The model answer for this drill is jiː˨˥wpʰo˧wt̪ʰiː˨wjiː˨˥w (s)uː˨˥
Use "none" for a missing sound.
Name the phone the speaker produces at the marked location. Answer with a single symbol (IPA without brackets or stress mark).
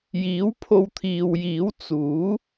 t͡s